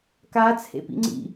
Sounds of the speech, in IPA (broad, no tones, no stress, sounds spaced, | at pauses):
k a t͡sʰ ḛ p ḭ ŋ͡ǀ ḭ